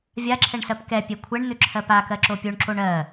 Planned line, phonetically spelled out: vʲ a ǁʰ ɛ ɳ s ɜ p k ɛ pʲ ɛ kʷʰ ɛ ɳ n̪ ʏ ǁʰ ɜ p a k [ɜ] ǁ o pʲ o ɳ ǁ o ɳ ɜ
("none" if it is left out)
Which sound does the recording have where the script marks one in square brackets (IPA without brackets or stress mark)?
ɜ